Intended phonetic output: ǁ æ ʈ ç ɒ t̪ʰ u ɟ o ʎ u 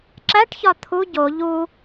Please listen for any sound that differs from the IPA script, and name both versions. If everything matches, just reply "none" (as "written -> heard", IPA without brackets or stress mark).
none